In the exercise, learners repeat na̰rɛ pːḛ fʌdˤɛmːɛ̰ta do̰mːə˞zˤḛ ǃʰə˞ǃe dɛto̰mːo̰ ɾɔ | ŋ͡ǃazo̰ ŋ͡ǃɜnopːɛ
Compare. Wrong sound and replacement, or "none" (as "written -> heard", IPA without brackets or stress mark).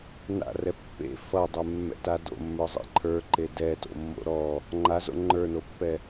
ɜ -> ə˞